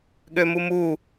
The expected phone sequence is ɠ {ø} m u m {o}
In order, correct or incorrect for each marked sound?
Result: correct, incorrect: u

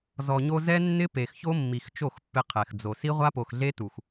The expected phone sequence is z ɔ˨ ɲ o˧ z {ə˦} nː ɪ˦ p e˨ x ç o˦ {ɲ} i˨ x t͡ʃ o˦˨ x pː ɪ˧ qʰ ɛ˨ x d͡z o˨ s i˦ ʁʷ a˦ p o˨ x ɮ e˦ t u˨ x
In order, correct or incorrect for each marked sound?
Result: incorrect: ɛ˦, incorrect: mː

